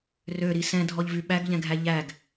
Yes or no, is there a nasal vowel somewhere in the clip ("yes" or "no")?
yes